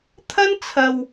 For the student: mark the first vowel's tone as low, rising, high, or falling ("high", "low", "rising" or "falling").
high